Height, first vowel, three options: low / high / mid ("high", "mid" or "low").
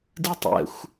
high